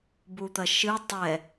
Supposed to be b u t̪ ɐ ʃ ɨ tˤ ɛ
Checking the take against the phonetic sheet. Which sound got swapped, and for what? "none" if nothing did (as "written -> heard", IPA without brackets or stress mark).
none